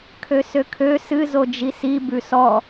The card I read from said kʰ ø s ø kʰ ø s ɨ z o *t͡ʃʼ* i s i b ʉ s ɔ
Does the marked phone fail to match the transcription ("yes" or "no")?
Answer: yes